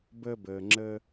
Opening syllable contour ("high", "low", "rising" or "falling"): high